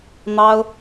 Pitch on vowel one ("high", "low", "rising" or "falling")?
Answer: high